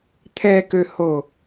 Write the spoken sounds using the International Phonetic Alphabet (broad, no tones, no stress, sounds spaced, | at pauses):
t̪ʰ ɛ k ø h o